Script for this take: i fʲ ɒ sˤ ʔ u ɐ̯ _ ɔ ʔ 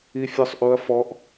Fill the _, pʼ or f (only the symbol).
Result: f